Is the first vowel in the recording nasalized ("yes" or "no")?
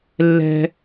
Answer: no